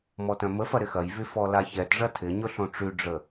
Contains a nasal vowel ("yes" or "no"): yes